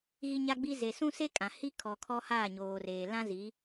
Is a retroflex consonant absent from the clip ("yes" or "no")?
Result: yes